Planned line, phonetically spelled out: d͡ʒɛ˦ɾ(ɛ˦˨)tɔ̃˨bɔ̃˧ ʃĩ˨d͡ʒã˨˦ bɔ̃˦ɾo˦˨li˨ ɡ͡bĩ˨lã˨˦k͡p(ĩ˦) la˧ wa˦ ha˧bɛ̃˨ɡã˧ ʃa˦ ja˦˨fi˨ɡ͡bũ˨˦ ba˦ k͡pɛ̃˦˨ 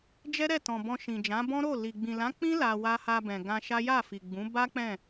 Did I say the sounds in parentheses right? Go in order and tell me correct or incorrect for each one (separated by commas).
correct, correct